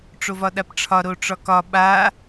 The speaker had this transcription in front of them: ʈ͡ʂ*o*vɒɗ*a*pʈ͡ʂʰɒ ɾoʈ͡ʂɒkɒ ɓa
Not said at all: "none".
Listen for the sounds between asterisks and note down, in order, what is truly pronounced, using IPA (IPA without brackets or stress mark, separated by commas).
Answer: o, a